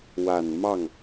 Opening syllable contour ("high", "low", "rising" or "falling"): low